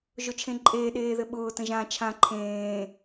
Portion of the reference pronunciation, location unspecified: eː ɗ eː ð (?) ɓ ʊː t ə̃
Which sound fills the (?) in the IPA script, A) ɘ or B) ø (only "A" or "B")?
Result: A